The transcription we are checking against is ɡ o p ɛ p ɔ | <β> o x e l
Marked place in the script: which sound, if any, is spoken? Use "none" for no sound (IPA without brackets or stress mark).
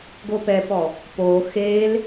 p